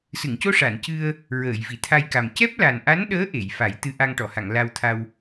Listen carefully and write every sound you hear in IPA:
s ɨ˨˩˨ ŋ c o˧ ʂ a˨˩˨ n c ɨ˧ ə̯ | ɹ əː˨˩˨ j v i˨˩˨ t̪ʰ a˧ j k a˨˩ m c ɛ˦˥ p̚ l a˨˩ n ʔ a˧˥ n ɗ əː˧˥ ʔ e˨˩˨ j f a˨˩˦ j t̪ ɨ˧ ʔ a˧ ŋ ʈ ɔ˨˩˨ h a˨˩˨ ŋ l a˧ w t̪ʰ a˧ w

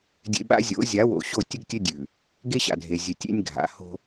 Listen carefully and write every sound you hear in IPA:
dʲ ḛ˨ ɓ a̰˦ zʲ o̰˨˦ zʲ a˨˦ w o̰˨ ɕ o˦˨ tʲ ɨ˦ ɡ tʲ ɵ˦ dʲ ʉ˨ | ɡ e˦ ɕ a̰˨ dʱ e˨ zʲ ɨ˨ tʲ ḛ˦ nʲ ɡʱ a̰˨˦ h o̤˦

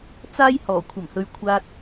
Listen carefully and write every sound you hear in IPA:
t͡s aː˥ j h ɔː˨˩ kʷʰ ɐ˨˩ m h ɵ˨ ɥ kʷʰ aː˧ t̚

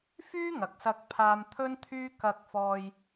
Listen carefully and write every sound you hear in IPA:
f yː˥ ŋ ɐ˨ k̚ s ɐ˧ k̚ pʰ aː˧ m t̪ʰ ɵ˥ n t̪ʰ yː˥ k ɐ˧ k̚ f ɔː˧ j

